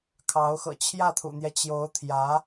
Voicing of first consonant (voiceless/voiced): voiceless